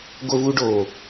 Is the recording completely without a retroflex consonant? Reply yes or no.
no